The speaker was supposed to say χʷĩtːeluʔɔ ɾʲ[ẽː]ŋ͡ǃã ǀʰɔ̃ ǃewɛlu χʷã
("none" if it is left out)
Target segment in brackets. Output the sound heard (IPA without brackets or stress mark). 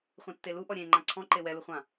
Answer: ẽ